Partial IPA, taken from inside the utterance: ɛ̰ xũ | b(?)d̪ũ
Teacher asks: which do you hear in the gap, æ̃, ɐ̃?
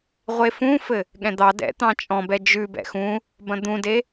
ɐ̃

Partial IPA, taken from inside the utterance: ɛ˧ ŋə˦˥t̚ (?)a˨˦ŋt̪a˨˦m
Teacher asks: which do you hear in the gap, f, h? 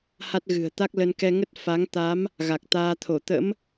f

